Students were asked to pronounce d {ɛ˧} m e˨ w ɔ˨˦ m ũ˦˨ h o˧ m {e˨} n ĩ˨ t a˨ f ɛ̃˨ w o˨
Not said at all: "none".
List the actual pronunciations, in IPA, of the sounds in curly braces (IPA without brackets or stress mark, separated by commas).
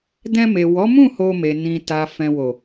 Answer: ɛ̃˧, e˨